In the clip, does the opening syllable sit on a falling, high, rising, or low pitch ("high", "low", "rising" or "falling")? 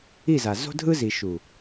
falling